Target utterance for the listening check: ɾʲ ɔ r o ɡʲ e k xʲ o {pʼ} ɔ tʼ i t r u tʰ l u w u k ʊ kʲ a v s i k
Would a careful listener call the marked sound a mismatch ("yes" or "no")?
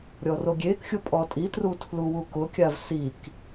no